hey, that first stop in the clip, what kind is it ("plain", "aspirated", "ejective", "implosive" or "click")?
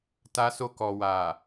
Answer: plain